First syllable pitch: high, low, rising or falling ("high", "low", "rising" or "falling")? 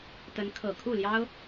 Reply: rising